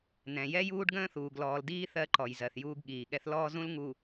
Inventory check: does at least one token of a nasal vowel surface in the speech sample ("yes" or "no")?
yes